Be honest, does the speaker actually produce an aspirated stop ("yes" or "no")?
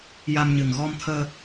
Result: yes